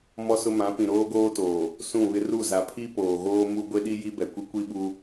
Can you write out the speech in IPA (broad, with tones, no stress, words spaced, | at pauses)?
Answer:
mɔ˦sʊ˦ mã˨˦ pĩ˨ɾoː˦ɡoː˦toː˨ | sũ˦˨βɪ˦ ru˦˨za˨pʰi˦ poː˨ɣoː˦ mu˦ ɡʷe˦ɗi˦ ji˦bɛ˨kʷi˦ kʷi˦ɓu˦